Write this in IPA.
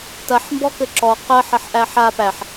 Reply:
tɐħ mbɔkɘǁɔ qɜħ ɐħʔæħa pæħ

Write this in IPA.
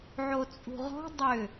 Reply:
ʕot͡sʼṳʁɔ̤ dˤʏ

